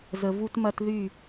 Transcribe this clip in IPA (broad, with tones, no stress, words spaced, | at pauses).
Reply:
zə˨vu˦tmɐ˦tðy˦˨